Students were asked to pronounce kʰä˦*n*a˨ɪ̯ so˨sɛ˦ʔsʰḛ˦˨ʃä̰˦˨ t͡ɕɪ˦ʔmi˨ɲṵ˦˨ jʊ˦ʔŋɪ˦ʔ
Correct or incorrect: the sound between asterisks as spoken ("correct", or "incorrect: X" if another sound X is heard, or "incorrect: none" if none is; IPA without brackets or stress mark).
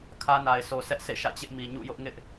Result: correct